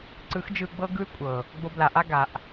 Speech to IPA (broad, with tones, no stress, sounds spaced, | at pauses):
ǀ ɯ˨˦ x d͡ʒ ɯ˧ ɡ͡b ɤ˦ ɡ ɯ˦ y̯ kʷʼ ɤ˨ | ɡ͡b o˧ b l a˨ ʔ a˦ ɡ a˨ ʔ